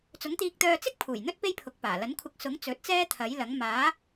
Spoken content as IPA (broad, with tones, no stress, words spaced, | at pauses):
t͡sʊ˨˥ŋt̪iː˧k̚t̪œː˧t͡sɪ˥k̚ pʰuː˨˩jn̪ɵ˥t̚ pe˥jpʰʊ˨˥k̚paː˨˩ lɐ˨˥nkʷʰɐ˧k̚sʊ˨˥ŋ t͡sɵ˨˥t̚t͡sɛː˥t̪ʰɐ˨˥jlɐ˨˥ŋ maː˨˥